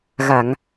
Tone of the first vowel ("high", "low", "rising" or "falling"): low